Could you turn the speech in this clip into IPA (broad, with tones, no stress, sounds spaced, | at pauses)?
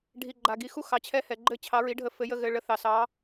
ɖʱ i˨ ɡ͡ǃ a˨ ɡ i˨˦ x u˥˧ x ɑ˨˦ t͡ɕʰ ɛ˥˧ h ɛ˨ ɡ͡ǃ ɘ˥˧ t͡ɕʰ ɑ˨˦ ɹ i˨˦ ɖʱ ə˨˦ f ɘ˨˦ j ə˧˥˧ ɣ ɘ˨˦ ɭ ə˨˦ θ ɑ˨ s ɑ˨˦